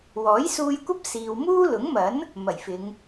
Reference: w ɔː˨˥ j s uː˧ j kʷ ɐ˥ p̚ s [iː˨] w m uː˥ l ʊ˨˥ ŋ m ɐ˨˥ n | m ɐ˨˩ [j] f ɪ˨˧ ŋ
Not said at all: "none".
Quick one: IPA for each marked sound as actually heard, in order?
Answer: iː˨, j

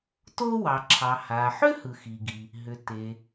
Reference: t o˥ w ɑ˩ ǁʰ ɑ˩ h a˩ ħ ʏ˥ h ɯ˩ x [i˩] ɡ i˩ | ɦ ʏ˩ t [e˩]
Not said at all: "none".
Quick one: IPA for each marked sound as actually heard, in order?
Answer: i˩, e˩

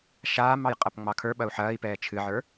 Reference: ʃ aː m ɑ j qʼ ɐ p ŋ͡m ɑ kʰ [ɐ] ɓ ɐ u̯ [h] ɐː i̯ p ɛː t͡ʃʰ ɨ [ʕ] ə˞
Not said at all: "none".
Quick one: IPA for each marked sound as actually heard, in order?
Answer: ə˞, ħ, ʕ

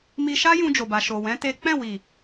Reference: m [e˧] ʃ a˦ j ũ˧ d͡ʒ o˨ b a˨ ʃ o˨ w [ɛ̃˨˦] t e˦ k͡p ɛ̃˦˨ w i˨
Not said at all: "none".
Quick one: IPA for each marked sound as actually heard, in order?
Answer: i˧, ɛ̃˨˦

